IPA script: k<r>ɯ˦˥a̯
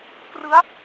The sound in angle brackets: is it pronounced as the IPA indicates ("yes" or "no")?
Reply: yes